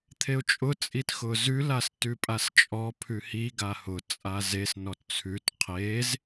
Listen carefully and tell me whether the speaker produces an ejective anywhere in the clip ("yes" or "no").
yes